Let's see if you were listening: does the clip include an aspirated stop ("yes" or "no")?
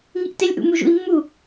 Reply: no